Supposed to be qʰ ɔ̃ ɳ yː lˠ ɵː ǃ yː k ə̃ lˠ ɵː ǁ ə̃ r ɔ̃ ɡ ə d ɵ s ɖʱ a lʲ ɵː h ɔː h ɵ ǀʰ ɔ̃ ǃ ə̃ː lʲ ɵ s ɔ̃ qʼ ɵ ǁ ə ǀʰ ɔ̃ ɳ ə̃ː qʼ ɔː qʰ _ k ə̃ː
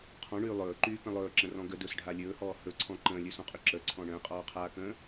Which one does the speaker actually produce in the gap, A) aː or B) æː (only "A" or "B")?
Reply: A